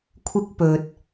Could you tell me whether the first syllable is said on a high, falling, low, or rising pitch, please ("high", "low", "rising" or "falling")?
high